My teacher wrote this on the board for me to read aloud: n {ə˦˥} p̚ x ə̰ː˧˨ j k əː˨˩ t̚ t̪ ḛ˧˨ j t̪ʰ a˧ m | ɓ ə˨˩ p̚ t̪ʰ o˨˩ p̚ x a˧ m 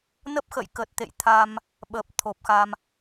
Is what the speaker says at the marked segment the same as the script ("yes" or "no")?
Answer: yes